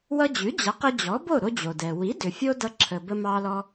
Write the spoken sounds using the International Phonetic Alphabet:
w ʌ˧ d͡ʑ ʉ˩˥ d͡ʑ ʌ˩˥ q ə˧ d͡ʑ ɔ˩˥ b o˥˩ ɾ o˧ d͡ʑ o˩ d ɛ˩ w i˩˥ d ʏ˩ fʲ o˧ d ʌ˧ ǁʰ ə˩ b ə˧ m ɑ˧ l ɔ˧

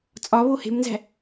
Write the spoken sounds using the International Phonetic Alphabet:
t͡sʼ ɒ β o h e̤ m n z æ̤

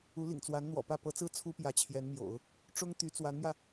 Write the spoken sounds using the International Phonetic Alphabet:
u˧˥ l ḭ˨˩ ŋ t͡s w a˧˥ n n̪ w ɔ̰˨˩ p ä˥˩ p ɤ˧˥ t͡s ɹ̩˥ t͡sʰ u˥ p j ä˧˥ t͡ɕʰ j ɛ˧˥ n m j o̰˨˩˦ ʊ̯ | ʈ͡ʂ ʊ˥ ŋ t̪ y˧˥ t͡s w a˧˥ n m j ä˧

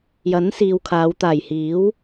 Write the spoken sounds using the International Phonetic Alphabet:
j ɐ˨˥ n s iː˨ w kʰ aː˨˧ w t̪ aː˨˩ j h iː˨˥ w

